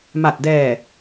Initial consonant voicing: voiced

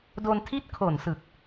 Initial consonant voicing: voiced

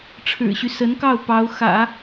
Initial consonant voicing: voiceless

